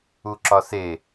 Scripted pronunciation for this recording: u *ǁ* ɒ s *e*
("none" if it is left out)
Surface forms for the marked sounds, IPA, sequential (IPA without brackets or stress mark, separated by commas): ǁ, e